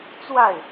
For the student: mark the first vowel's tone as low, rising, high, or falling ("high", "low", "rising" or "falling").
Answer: falling